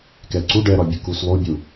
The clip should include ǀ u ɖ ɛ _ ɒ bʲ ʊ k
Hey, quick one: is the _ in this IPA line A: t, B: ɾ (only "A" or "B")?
B